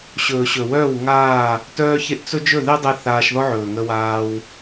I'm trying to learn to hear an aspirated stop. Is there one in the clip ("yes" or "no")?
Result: no